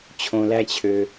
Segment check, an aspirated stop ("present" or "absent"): present